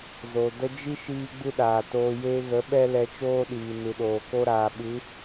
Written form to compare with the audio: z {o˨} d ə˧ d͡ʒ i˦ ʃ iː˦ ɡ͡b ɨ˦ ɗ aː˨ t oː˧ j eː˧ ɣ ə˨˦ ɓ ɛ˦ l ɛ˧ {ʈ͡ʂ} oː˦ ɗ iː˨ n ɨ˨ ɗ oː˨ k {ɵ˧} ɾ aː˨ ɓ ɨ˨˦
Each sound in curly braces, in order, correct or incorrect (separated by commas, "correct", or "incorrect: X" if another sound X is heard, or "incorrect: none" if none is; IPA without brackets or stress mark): correct, incorrect: t͡ʃ, incorrect: o˧